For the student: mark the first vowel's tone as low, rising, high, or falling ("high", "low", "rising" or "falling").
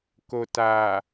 low